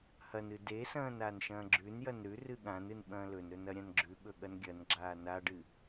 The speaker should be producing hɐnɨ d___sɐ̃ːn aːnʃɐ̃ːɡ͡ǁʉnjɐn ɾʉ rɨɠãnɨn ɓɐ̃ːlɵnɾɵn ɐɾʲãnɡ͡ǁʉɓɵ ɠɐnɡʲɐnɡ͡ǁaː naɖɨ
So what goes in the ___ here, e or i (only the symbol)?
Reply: e